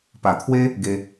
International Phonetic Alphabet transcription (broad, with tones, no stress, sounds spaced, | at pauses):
p a˨˩ t̪ʰ w e˦ | ɡ e˧